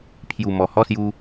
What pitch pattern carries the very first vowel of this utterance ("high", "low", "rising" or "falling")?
low